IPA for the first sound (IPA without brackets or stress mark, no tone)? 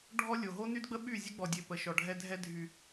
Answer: ɖʱ